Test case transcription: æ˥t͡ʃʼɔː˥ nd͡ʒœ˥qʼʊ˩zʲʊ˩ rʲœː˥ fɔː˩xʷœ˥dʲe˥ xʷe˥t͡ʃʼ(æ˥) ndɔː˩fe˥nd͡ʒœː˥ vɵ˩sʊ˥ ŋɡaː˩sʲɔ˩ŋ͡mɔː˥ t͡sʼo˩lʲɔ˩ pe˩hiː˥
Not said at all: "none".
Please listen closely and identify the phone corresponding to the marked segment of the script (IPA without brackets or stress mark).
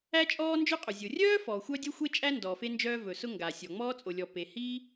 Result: æ˥